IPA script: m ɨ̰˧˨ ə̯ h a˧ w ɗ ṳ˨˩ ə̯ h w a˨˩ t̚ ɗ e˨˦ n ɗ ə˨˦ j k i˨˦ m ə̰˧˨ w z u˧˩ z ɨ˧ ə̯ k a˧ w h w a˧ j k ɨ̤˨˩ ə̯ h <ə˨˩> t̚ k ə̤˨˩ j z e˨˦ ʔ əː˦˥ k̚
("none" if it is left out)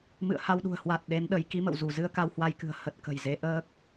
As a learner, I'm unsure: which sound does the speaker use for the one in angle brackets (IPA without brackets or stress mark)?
ə˨˩